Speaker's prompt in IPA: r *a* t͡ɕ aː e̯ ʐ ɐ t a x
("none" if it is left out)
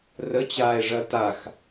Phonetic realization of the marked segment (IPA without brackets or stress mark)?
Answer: ə